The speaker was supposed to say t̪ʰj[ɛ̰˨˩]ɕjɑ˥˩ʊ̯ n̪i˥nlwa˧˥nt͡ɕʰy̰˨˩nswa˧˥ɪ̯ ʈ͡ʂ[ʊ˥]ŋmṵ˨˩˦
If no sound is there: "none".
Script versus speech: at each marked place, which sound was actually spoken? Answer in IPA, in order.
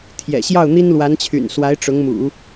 ɛ̰˨˩, ʊ˧˥

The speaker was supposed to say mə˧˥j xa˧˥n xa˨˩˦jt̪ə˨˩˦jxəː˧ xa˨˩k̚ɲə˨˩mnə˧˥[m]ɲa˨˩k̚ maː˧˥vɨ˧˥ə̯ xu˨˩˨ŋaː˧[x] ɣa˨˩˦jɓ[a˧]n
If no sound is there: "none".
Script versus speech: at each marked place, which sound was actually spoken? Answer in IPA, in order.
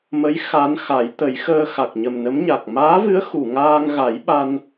m, ŋ, a˧

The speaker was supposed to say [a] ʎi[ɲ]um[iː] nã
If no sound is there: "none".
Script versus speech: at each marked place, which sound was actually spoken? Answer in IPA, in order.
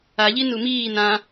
a, n, iː

